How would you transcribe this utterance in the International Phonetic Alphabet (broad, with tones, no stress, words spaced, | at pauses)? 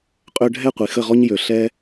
qʼø˧ɖʱɛ˦˨ qʷi˨xə˦˨ʁɔ˦ɲ jø˨ ɬɛ˦